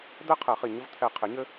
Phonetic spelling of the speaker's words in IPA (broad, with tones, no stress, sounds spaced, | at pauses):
d̪ ɛ˥ qʰ ɛ˨˩˦ χ i˧˩ ɲ ɘ˥ v t̪ʰ ɛ˧˩ qʰ ɪ˨˩˦ ɲ ɘ˥